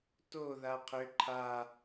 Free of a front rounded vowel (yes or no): no